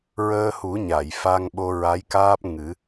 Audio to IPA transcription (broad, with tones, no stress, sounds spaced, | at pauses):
ɹ əː˧ h u˨˩˦ ɲ a˨˩˨ j f a˧ ŋ ɓ o˧ ɹ a˧˥ j k aː˦˥ p̚ ŋ ɨ˨˩˦